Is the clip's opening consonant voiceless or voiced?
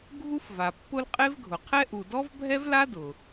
voiced